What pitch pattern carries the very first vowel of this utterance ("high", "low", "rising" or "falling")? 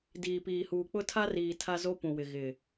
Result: low